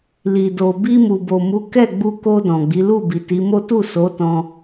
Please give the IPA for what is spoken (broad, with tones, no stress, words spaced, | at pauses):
li˨do˨ bi˧mu˨bo˨mu˨˦ kɛ˦˨ɡ͡bu˧ko˧ dɔ̃˨ɡ͡bi˨˦ lu˦˨bi˨ti˨˦mo˦ tu˦˨so˨˦ tɔ̃˧